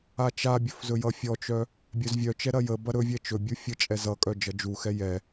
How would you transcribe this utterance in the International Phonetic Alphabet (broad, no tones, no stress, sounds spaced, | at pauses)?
a t͡ʃ a bʲ ɵ f z ɵ j ʌ fʲ ɔ t͡ʃ œ | bʲ œ z vʲ œ t͡ʃ ɛ ɾ ɐ j ə b ɐ ɾ ɵ vʲ ɛ t͡ʃ ɵ bʲ u fʲ ə t͡ʃʼ ɛ z ʌ kʼ œ d͡ʒ ʌ d͡ʒ u x ɛ j ɛ